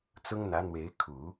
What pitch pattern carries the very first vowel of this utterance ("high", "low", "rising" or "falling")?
high